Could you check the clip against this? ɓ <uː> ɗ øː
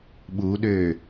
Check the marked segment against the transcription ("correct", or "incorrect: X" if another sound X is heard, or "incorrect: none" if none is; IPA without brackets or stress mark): correct